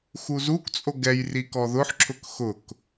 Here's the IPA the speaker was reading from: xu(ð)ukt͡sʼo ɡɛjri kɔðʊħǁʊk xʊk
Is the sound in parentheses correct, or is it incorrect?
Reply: incorrect